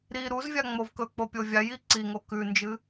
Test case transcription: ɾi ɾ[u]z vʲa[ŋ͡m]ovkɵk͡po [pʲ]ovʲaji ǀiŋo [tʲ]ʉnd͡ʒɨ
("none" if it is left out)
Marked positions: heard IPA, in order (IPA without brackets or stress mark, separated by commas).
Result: u, ŋ͡m, pʲ, k